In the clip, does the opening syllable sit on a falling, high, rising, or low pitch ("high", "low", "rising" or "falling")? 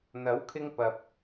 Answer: rising